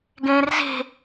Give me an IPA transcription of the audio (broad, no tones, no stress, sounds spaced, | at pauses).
ɡ ẽː r z e̤